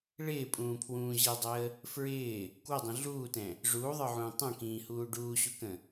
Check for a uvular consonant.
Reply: absent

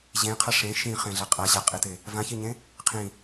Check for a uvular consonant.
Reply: present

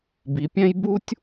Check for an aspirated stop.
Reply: absent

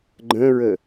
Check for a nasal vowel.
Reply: present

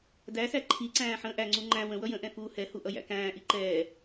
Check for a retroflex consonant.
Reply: absent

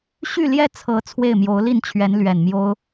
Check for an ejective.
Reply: absent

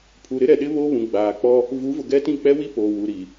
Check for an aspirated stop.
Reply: present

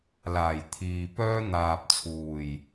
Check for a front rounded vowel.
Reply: present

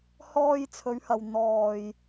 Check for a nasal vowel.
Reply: absent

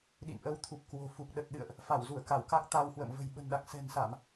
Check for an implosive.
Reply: present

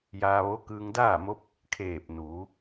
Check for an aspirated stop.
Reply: present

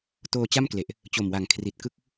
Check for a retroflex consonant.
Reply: absent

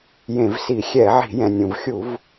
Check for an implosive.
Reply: absent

